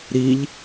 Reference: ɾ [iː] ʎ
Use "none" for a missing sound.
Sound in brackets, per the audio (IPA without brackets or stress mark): i